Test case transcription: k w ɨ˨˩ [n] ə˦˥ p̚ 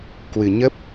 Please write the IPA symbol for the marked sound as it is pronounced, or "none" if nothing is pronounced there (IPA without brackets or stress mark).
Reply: ɲ